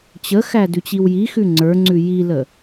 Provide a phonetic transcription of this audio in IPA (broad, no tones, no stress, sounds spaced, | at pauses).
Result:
t͡ɕ ə x æ d ʉ t͡ɕ i w j i x ʉ ŋ͡ǀ ə˞ ŋ͡ǀ ʉ j i l ə